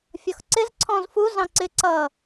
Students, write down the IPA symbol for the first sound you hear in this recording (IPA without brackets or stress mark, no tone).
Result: fʲ